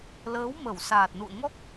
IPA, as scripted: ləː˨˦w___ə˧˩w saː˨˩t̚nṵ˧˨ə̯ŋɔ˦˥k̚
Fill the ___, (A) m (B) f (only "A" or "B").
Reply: A